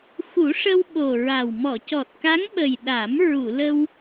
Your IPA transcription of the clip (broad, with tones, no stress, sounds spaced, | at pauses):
x u˨˩˦ ʂ ə˧ w ɓ o˨˩ ɹ a˨˩ w m ɔ˨˩˨ c ɔ˨˩ t̚ k a˧˥ ŋ ɓ ə˨˩ j ɗ a˨˩˦ m ɹ u˨˩˨ l ə˧ w